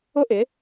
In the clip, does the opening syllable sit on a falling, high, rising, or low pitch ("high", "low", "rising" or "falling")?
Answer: high